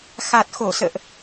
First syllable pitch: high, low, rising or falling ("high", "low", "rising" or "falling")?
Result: low